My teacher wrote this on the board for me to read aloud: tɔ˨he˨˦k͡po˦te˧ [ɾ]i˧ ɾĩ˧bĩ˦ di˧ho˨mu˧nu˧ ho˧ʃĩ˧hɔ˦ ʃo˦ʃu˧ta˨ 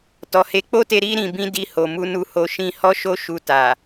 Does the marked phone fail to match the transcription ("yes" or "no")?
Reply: no